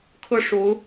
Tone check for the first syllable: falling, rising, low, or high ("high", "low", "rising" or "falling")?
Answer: falling